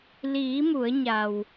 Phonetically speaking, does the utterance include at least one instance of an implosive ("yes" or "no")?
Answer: no